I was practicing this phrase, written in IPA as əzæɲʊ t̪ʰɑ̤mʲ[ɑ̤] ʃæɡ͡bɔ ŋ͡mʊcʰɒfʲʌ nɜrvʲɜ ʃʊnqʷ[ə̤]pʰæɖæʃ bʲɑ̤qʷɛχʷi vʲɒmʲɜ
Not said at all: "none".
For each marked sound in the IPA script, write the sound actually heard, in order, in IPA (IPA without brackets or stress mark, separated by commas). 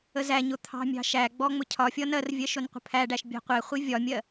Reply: ɑ̤, ə̤